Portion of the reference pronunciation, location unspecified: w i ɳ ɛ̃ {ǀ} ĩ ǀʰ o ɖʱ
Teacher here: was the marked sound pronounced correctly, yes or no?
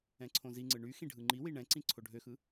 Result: yes